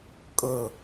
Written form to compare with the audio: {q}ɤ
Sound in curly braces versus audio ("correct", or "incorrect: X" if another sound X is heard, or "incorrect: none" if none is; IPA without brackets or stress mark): incorrect: kʼ